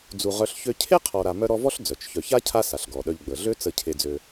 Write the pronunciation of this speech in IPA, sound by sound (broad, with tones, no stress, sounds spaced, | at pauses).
d͡z u˨ ʁ œ˦ ɬ ç ø˥ cʰ e˥ qʰ ɔ˨ ɾ a˨ m œ˦ ɾ ɔ˦ v ɔ˥ ɬ d͡z œ˩ t͡ʃ ç œ˨ ç a˥ cʰ a˦ s a˩ ɬ ɡ ɔ˩ ɗ œ˨ ʎ ɡ͡b ə˩ ɮ ø˦ t͡s ə˨ cʰ e˨ d͡z ø˨